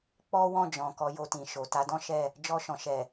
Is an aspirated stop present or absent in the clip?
absent